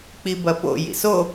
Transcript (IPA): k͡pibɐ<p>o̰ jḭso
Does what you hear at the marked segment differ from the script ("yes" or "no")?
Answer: no